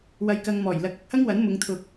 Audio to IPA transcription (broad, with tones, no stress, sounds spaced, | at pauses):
w ɐ˧ j k ɐ˧ ŋ m ɔː˨˩ j l ɐ˨˥ k̚ ɐ˨ k̚ h ɐ˥ ŋ w ɐ˨˥ n m ʊ˨˧ ŋ t̪ʰ ʊ˨ k̚